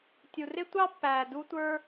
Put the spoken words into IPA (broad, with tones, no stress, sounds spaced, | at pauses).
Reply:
tʲ u˨ r ɪ˦ tʷ ɑ˦ pː æː˨ d u˧ tʷ ə˞˧